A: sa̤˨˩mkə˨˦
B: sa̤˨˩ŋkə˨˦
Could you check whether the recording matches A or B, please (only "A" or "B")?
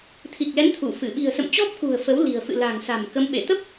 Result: A